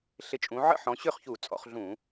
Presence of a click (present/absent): absent